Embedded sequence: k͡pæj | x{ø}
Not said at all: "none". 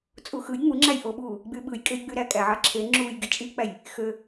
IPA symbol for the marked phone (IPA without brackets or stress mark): ø